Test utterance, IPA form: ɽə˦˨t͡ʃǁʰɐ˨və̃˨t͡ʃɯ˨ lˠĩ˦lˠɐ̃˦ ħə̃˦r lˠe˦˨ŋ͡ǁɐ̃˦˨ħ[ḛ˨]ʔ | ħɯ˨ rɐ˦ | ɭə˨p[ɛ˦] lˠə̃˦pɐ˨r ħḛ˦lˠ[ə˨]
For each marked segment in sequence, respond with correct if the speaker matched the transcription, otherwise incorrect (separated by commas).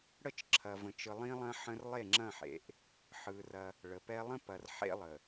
correct, correct, correct